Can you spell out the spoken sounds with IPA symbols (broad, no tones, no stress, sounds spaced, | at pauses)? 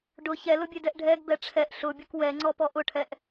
ɖ ʊ ç ɛ l ʊ bʲ e d ɛ ʔ ɖʱ ɛ ɡ b ɛ ʈ͡ʂʰ ɛ ʔ ɬ ʊ bʲ ʊ k w ɛ ŋ͡ǀ ɔ p ɔ ʔ ʊ ʈʰ ɛ ʔ